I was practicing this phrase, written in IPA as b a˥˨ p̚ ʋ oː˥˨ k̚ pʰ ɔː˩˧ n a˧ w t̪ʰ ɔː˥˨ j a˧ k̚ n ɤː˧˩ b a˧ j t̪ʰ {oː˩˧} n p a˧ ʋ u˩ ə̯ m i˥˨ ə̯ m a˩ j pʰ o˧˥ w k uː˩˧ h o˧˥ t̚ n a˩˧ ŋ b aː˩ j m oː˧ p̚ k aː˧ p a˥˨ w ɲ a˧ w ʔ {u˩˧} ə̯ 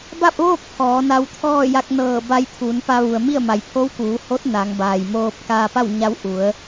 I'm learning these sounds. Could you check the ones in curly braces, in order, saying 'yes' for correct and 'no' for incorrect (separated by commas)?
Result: no, yes